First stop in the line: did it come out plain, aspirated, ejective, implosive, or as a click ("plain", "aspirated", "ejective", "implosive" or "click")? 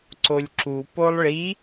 click